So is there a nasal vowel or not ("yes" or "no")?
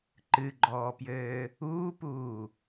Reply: no